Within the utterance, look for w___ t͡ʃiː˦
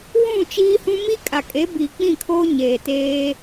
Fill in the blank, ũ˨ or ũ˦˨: ũ˦˨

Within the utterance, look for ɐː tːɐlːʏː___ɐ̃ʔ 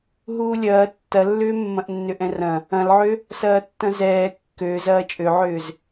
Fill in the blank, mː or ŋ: mː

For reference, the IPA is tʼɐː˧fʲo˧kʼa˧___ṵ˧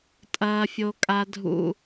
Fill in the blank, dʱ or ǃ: dʱ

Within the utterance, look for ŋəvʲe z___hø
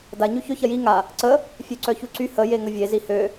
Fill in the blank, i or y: i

